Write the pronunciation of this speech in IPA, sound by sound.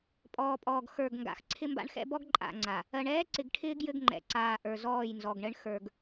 pʼ ɔː˨ pʼ ɔː˨ ɡ x ə˞˨ ɡ ŋ ɡ a̰˨ x ǀʰ ɪ˦ m b a̰˦ ɳ x ɛ̰˦ b ɔ˦ ɡ ǃʼ a̰˨ ŋ͡ǀ a˨ | ɜ˨ ɳ ɛː˦ ǀ ɪ˨ ɡ ʈʰ ɪː˦ ɡ j ɘ˦ ɡ ŋ͡ǃ ɛ̰˨ ǀ aː˨ ʔ ə˞˨ z ɔː˦˨ j n z ɔ˨ ɡ ɳ ɘ˦ ɳ x ə˞˨ ɡ

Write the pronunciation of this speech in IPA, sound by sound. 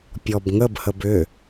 pʲ ɔ b ŋ ə b h ə b ʏ

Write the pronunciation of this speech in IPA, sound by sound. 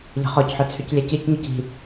ʎ ə̤ χ ɔ c ħ œ t͡sʰ y c lʲ ɛ c i c ɲ ɔ c i̤

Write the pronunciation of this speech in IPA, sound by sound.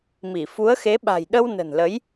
m i˧˩ f u˨˦ ə̯ x e˨˦ ɓ a̤˨˩ j ɗ ə˧ w n ə̤˨˩ n l ə˨˦ j

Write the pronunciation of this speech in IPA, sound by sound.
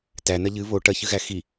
t æ n ɐ ʎ ɨ β o ʈ ɐ ç ɨ ɣ æ x i

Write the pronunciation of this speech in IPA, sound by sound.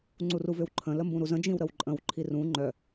ŋ͡ǀ u r u v ʏ w ǃʰ ə̃ l ə m b ũ ɾ u z ə̃ d͡ʒ ĩ w ɾ ə w ǃʼ ə̃ w ǃʰ i r ũ ŋ͡ǃ œ

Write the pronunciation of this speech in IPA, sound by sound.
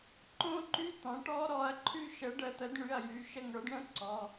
ǃ õ˦˥ ǃ y˧˥˧ t̪ ɔ̃˩˥ ʈ ɔ˦˥ ɾ ɔ˩˧˩ ɐ̯ ǃʰ y˦˨ ʃ ə˩˥ ɖ ə˩˧ t̪ ə˩˥ d ɳ y˩˧˩ ɐ̯ j y˩˧ ʃ ə˦˨ ŋ ə˞˩˥ d ɳ ə̃˦˥ ǀ ɔ˩˧˩

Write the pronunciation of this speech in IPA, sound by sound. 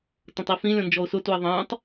t ə̃ tˤ i f ĩ lʲ ɔ̃ n d͡ʒ ɔ ʊ̯ s ʊ t u ɪ̯ ðˤ ə̃ː tˤ

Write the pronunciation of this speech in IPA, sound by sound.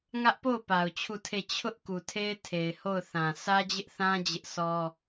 ŋ ä˦ ʔ p o˦˨ ʊ̯ p a˨ ʊ̯ t͡ɕʰ u˦˨ tʰ e˦˨ t͡ɕʰ ʊ˦ ʔ k u˨ tʰ e˦ ɪ̯ tʰ e˨ ɪ̯ h o˦˨ ʊ̯ θ ã˨ sʰ ä˦ d͡ʑ ɪ˦ ʔ θ ã˦ d͡ʑ ɪ˦ ʔ s ɔ˦

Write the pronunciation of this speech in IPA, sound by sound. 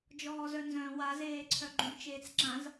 d͡ʒ ɔː z œ n z œ̃ w a z eː ǀʰ œ ɡ͡ǃ ũ b t͡ʃ eː t͡s ǁ ã z

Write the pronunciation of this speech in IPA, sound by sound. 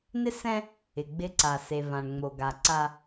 n ɪ˦ s ɛ̃˦ | ɪ˨ ɡ͡b ɪ˦ ǀ a˨ s e˨ v ã˨ ɳ ŋ͡m o˨ ɡ a˨ ǀ a˦

